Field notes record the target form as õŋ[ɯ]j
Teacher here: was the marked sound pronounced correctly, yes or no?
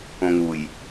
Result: no